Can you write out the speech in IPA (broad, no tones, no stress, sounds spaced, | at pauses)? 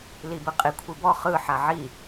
l i b ɯ qʼ i kʷʰ i b ɔ χ ɯ ħ a ʕ i